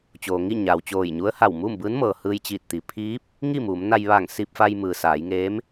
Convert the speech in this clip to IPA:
t͡ɕ oː˩ ŋ i˥˨ ɲ aː˩ w t͡ɕ oː˧˩ j ɲ u˧˥ ə̯ h a˧˩ w m uː˥˨ m b ɯː˧˥ n m ɤː˩ h ɯː˧ j t͡ɕ iː˧˩ t̚ t̪ i˩˧ pʰ iː˧˥ p̚ | ŋ i˥˨ m uː˩˧ m n a˧ j ʋ aː˧˩ ŋ s i˧ p̚ f a˧ j m ɯː˩ s aː˩˧ j ŋ eː˧˥ m

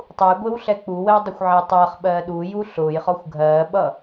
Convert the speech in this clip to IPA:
tˤ u j ɡʷ ɪː w ɬ ɛ k͡p u w ə w dˤ ə xʷ ʕ ɪː tˤ ʌː χ ɓ ɜː ɗ u j u ɬ ʊː j χ ɔ xʷ ɡʱ ɜː ɓ ʌ

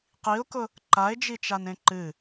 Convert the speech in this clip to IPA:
q i ʊ̯ k ʊ | ǃ a ɪ̯ d͡ʒ i t͡ʃ a n ẽ ǃ ɨ

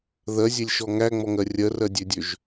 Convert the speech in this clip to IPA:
ð ɜ zʲ e lʲ ʃ ɔ ŋ æ ŋ͡m ɔ ŋ ɜ rʲ ɜ r ɜ dʲ ø dʲ ø ʒ

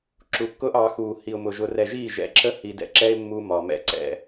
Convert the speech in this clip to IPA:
ǁ u˨ kː ʊː˦ ʔ ɑ˨˦ x uː˨ h i˨ ʊ̯ m ʊ˨ ʒ ʊ˨ r ɛ˨ ʒ iː˦˨ ʒ ɛ̰˨ ǁ ə˦ h i˨ d ɛ̰˨ ǁ ɛ˦ ɪ̯ mː u˦ m ɒ˨ m ɛ̰˦ ǀ ɛ̰˨

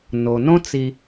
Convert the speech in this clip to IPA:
n o˩ n õ˥ t͡s i˨

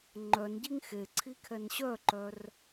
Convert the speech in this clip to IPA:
ŋ͡ǃ œ n ɟ i ŋ x e ǀʰ i kʰ ɛ n ɕ œ ǃ œ r

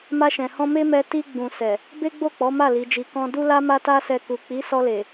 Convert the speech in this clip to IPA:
m a˧ ʃ ɛ̃˨ h ɔ̃˧ m e˦ m ɛ˧ t i˧ ɡ͡b ũ˨ s ɛ˨ | b e˦ ɡ͡b o˦˨ k͡p ɔ˨˦ m a˦˨ l i˨˦ d͡ʒ i˧ k ɔ̃˦ d u˦ l a˦ m a˦ t a˦ s ɛ˧ k u˨ k͡p i˨˦ s ɔ˧ l e˨

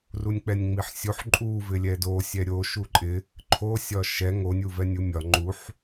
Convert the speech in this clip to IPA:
r u nʲ k͡p ɛ nʲ ŋ͡m i ħ sʲ u ħ ǃʼ u v ɪ lʲ ɛ d o sʲ ɛ ɾʲ o ʃ u ǃʼ ɪ | ǃʰ o sʲ ɒ ʃ ɛ ŋ o nʲ u v ɛ nʲ u mʲ ɒ ŋ͡ǃ u ħ

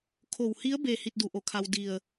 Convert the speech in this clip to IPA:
kʰ o˧˩ w h i˧˥ ə̯ b e˧˩ h i˥˨ t̚ d u˩˧ ʔ o˩˧ kʰ a˧ w d i˧˩ ə̯

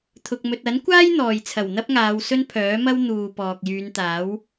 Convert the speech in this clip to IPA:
t̪ʰ ʊ˧ k̚ m ɵ˧ t̚ ɐ˨˥ n kʷ aː˥ j n̪ ɔː˨ j t͡sʰ ɐ˨˩ w n̪ ɐ˥ p̚ ŋ aː˨˧ w s ɵ˥ n pʰ œː˨˥ m ɐ˥ w n̪ uː˨ p ɔː˨ k̚ j yː˨˧ n t̪ aː˨˥ w

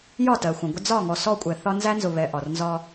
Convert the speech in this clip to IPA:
j ɒ˦˨ t ɜ˨ xʷ ə̃˨ ɡʷ ə˦ d͡z ɒ˦˨ ŋ ɔ˨ s ɔ˦˨ kʷʼ ɛ˨ θ ɒ˦ n z æ˦ n z ʊ˨ β ɛ˨ ʔ ɒ˨ r n z ɒ˦

